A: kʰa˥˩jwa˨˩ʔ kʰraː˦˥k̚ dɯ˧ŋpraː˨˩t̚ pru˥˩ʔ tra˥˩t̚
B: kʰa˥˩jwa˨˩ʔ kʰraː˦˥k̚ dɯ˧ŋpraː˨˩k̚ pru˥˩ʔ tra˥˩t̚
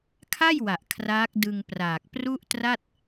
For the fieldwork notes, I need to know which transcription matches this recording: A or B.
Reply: B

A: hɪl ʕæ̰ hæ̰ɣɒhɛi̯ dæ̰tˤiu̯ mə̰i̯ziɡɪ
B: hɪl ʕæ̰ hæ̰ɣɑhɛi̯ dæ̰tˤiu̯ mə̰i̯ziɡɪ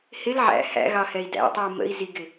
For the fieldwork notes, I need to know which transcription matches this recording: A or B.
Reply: B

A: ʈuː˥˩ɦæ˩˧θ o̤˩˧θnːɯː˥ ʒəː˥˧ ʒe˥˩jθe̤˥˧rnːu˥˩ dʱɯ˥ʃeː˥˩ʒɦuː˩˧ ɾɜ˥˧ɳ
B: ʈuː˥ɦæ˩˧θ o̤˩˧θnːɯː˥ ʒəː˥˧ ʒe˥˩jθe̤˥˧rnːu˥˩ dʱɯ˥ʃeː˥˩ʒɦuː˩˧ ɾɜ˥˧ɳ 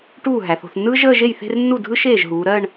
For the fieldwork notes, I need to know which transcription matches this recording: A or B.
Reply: A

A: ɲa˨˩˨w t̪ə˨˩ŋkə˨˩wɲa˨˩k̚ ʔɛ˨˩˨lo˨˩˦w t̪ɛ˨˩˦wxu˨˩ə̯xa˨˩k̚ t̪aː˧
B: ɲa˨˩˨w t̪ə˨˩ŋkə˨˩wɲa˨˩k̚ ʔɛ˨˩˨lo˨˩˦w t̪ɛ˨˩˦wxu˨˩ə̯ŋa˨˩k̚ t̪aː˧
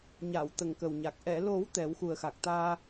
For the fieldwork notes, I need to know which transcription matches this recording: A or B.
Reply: A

